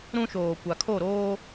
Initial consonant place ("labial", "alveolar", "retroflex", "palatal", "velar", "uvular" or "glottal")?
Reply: alveolar